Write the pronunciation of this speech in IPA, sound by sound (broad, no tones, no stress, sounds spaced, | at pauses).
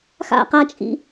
x a̰ q a t͡ʃʼ ḭ